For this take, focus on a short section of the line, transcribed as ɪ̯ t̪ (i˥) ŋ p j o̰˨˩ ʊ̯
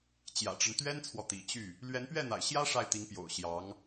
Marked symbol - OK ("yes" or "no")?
no